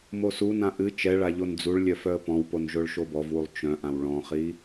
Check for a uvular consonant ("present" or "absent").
present